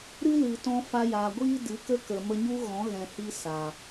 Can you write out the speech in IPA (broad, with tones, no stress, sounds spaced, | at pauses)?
ɾ ɨ˦ l ɨ˨ t ɔ̃˧ f a˧ j aː˨ ɡʷ iː˦ d ɨ˨˦ k ə˦ k ə˨ m ə˧ ɲ u˦ ɣ ɔ̃˨˦ ɣ ɛ̃˧ h i˦ s a˨